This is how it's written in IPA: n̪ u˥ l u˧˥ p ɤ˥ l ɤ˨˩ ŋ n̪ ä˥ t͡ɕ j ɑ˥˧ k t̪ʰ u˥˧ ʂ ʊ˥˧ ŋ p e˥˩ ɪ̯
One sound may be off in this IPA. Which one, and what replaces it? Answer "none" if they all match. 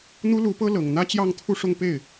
k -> ŋ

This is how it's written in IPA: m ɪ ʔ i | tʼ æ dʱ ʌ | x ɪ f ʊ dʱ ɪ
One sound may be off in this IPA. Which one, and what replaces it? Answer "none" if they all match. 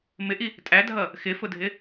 none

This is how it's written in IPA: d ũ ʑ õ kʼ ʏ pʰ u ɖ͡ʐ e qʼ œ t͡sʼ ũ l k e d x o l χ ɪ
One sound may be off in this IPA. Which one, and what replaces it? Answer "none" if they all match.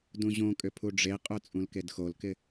χ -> k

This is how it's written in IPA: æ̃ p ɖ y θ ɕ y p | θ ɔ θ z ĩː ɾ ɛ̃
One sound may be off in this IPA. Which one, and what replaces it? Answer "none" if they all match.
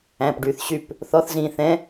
ɾ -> θ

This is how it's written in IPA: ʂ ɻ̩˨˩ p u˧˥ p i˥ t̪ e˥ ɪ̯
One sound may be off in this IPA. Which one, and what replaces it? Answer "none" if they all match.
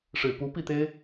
i˥ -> i˥˩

